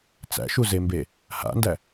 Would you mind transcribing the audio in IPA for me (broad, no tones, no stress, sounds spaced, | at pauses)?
t͡s æ̰ ʃ u z e m b e | h a̰ n d æ